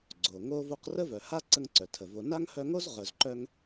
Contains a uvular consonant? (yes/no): yes